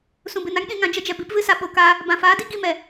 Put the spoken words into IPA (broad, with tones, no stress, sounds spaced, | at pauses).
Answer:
s ũ˨ b ɨ˨ n a˦ ŋ ɗ ĩ˧ ŋ ã˨ d͡ʒ ə˧ d͡ʒ ɛ˨ b i˨˦ p v ɨ˦ s a˧ ɓ o˨ k aː˧ | b ã˨ f aː˨˦ d i˦ ɡ i˧ m ɛ˨